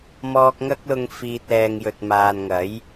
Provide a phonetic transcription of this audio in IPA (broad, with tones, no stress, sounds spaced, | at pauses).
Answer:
m ɔː˧ k̚ ŋ ɐ˥ k̚ l ʊ˧ ŋ f iː˧ t̚ l ɛː˧ ŋ j ɵ˨ t̚ m aː˨ n ŋ ɐ˨˥ j